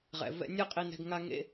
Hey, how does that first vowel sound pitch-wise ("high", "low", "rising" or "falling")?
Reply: low